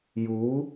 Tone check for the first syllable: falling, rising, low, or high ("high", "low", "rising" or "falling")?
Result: rising